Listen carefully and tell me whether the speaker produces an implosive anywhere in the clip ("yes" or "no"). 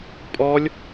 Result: no